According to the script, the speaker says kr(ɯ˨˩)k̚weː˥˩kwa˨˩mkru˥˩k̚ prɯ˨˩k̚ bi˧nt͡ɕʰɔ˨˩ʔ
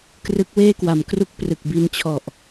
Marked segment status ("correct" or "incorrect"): incorrect